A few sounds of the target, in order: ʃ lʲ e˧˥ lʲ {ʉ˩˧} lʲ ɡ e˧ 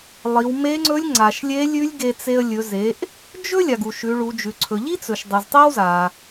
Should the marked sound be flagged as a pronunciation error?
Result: yes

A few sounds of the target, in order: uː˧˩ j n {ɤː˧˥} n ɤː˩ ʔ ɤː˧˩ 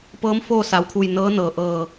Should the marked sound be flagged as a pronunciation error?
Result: no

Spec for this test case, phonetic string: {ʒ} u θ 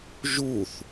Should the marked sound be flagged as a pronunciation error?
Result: no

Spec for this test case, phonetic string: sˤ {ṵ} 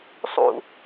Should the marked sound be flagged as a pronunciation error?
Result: no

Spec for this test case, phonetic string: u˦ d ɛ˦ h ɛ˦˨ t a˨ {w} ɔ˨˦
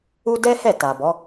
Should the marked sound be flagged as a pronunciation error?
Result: yes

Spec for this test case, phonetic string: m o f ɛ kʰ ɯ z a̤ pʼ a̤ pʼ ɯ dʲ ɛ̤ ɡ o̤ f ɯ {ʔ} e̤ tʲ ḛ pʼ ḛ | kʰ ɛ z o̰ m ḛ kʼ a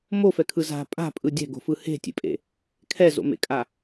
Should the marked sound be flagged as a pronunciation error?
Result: yes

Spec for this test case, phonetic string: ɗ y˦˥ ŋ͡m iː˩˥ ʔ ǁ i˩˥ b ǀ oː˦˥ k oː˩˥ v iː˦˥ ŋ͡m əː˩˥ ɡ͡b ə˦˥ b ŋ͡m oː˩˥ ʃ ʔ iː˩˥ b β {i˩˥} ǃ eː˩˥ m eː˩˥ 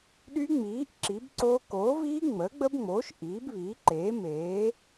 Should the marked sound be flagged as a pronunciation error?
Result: yes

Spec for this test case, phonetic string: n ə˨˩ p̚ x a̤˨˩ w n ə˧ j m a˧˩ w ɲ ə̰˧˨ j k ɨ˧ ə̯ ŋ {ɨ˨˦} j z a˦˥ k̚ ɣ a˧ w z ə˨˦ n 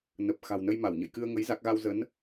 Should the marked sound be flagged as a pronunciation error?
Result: yes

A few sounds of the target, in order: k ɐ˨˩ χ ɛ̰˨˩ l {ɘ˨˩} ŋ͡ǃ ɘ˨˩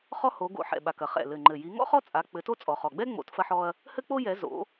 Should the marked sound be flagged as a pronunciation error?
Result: no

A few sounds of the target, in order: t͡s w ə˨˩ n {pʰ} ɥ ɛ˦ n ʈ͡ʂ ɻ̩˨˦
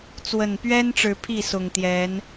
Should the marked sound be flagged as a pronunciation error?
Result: yes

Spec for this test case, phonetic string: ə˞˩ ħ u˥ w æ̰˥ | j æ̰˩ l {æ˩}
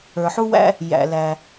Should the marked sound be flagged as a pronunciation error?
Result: no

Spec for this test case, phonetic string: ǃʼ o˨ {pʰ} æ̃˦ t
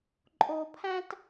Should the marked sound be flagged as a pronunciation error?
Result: no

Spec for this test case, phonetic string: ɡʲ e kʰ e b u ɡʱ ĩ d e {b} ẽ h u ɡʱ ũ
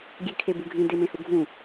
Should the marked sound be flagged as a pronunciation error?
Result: yes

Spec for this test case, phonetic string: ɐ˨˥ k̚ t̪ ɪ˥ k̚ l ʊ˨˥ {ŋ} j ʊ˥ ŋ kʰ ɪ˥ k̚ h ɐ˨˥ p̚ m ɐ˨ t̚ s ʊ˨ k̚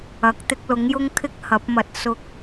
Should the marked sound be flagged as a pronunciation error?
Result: no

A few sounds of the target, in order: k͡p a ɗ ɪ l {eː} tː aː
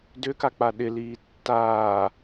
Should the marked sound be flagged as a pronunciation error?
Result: yes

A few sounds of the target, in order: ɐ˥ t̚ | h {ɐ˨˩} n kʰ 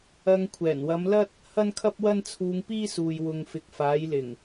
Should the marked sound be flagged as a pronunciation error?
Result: yes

